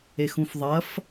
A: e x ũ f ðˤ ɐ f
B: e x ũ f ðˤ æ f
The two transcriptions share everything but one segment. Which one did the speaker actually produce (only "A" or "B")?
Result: A